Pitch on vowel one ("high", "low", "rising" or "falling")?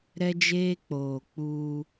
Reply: high